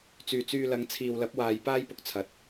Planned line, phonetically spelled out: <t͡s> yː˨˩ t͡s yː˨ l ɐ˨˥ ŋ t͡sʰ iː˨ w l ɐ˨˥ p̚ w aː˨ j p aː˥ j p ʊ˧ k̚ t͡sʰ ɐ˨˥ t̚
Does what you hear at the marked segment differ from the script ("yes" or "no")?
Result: no